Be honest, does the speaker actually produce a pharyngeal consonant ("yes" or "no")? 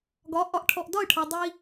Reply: no